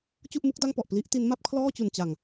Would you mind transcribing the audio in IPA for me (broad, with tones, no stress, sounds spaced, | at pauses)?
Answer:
t͡ɕ u˥˩ ʔ m u˦˥ k̚ d a˥˩ ŋ p ɔ˨˩ ʔ p l i˦˥ ʔ t i˦˥ n m a˦˥ p̚ kʰ l ɔː˥˩ t͡ɕ u˨˩ n t͡ɕ a˨˩ ŋ